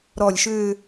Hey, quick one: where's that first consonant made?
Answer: tongue tip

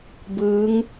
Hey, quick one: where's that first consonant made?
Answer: lips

